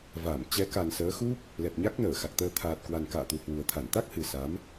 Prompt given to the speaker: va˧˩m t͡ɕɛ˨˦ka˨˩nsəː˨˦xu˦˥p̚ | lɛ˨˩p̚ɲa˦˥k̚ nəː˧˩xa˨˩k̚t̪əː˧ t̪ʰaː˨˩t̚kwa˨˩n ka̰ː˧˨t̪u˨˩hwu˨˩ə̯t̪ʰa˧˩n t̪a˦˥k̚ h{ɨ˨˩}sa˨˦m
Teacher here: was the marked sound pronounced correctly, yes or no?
yes